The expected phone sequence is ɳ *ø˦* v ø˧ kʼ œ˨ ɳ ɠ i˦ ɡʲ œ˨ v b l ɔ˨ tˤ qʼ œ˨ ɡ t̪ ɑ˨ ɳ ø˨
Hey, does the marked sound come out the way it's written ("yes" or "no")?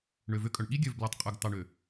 no